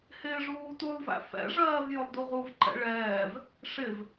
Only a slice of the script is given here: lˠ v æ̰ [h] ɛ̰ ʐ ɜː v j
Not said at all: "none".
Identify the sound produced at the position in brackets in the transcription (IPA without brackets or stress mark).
f